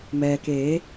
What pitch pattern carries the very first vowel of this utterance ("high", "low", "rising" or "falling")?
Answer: low